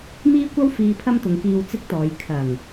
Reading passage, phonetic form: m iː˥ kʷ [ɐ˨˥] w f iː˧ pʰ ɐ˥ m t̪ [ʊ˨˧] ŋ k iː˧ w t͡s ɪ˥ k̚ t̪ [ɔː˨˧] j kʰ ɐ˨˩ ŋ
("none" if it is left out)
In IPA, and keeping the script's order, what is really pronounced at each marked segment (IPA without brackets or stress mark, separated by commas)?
ɐ˥, ʊ˨˧, ɔː˨˧